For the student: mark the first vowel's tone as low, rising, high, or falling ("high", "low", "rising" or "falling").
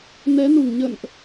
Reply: rising